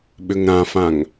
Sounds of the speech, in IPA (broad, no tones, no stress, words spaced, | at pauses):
ɓʏŋɾãfãŋ